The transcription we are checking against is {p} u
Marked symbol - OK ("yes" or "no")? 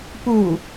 yes